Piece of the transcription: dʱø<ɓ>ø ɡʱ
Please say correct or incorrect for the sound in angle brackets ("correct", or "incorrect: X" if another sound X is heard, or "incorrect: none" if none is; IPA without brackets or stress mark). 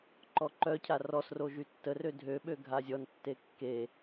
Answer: correct